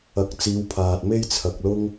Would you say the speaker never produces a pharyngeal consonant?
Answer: yes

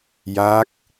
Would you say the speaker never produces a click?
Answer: yes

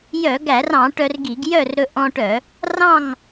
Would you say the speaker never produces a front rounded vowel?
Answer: no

